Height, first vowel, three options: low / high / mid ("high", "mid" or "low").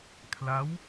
low